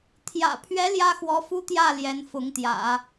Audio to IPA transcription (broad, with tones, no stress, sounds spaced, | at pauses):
t̪ʰ j ä̰˨˩ pʰ ɥ ɛ˧˥ l j ä˥ x w ɔ˧˥ f u˥ t̪ j ä˥˩ l j ɛ˧˥ n f ʊ˧˥ ŋ t̪ j ä̰˨˩˦